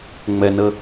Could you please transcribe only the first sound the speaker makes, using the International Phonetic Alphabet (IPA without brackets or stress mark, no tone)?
ŋ͡m